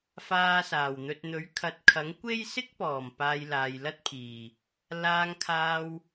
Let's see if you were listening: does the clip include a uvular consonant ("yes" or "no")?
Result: no